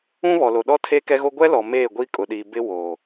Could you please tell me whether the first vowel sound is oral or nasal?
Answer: nasal